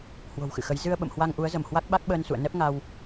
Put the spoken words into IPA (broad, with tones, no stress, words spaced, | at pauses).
hwo̤˨˩wxɨ̰˧˨xə˨˦j zɨ˧ə̯ ɓə̰˧˨mhwa˧ŋʔu˨˦ə̯zə˧˩m hwa˦˥k̚ɓa˦˥k̚ɓəː˧n sṵ˧˨ə̯nɛ˦˥p̚ ŋa˧w